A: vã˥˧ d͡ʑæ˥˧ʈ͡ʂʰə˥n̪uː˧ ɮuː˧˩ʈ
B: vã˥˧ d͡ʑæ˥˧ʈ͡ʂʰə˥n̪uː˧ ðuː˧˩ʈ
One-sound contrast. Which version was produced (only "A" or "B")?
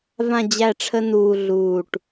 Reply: A